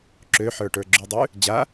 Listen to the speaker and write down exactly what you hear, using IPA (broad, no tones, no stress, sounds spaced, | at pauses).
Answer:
ǁ ø ħ ə˞ ʈ ə˞ ɡ͡ǁ ʉ dˤ ʉ | d͡ʑ a